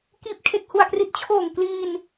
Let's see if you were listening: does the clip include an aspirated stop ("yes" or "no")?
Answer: yes